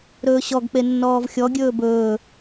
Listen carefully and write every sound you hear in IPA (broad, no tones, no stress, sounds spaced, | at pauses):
ɾ ɵː ɕ ɔ ɡ k͡p e nː ɔː v xʲ ɔ ɡʲ ɵː b ɵː